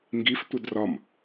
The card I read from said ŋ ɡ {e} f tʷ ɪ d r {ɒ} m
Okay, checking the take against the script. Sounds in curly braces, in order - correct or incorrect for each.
incorrect: i, correct

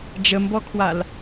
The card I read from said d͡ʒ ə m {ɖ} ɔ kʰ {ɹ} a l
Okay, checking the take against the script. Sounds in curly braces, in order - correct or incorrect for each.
incorrect: b, incorrect: w

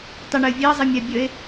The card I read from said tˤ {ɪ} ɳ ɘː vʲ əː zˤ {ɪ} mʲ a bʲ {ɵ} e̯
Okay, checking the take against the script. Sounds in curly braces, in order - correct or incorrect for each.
correct, correct, incorrect: ə

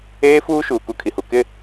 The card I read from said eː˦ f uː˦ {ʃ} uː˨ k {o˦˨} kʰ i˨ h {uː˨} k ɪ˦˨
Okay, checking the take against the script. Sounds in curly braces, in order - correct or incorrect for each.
correct, incorrect: u˦˨, incorrect: u˨

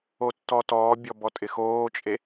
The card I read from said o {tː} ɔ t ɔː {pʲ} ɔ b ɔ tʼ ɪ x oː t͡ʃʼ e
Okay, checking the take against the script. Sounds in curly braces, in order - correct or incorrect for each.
correct, incorrect: bʲ

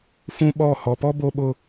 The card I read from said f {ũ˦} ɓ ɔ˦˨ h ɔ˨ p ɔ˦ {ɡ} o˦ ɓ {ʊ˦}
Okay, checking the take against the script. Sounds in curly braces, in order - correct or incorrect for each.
correct, incorrect: b, correct

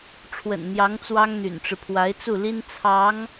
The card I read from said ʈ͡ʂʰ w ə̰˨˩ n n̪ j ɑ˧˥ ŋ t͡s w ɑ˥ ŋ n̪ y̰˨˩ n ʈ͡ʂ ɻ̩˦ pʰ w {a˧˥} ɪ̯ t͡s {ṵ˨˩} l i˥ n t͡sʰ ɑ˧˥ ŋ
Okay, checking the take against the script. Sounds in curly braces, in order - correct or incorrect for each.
correct, incorrect: u˥˩

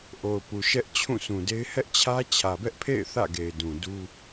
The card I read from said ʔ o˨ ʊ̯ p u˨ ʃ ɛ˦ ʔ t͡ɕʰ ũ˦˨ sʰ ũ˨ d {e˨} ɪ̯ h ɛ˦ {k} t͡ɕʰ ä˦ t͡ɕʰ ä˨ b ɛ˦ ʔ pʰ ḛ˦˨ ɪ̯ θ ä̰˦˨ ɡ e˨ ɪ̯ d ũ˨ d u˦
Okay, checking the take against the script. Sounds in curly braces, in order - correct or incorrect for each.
incorrect: e˦, incorrect: ʔ

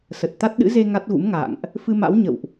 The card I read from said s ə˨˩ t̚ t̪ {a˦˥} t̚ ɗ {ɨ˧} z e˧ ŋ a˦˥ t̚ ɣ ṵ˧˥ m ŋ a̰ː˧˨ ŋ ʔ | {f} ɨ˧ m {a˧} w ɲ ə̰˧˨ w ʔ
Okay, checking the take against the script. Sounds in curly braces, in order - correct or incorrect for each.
correct, incorrect: ɨ̰˧˥, correct, incorrect: a̰˧˥

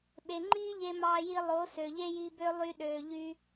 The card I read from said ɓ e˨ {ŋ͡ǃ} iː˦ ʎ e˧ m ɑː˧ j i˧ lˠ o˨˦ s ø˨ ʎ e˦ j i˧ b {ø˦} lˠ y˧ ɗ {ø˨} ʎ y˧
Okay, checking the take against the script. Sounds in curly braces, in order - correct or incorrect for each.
correct, correct, incorrect: øː˨

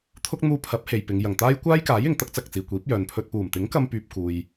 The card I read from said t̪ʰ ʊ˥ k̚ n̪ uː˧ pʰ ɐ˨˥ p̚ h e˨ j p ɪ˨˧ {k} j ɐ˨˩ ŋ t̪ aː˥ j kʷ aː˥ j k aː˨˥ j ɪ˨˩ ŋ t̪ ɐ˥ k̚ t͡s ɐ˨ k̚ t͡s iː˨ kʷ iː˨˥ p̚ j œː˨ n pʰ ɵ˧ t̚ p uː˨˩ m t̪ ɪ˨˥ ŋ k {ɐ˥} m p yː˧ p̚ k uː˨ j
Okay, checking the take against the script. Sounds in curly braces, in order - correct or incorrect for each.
incorrect: ŋ, incorrect: ɐ˧

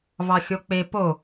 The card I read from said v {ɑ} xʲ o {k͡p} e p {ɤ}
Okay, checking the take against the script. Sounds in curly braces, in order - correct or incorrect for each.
correct, correct, incorrect: o

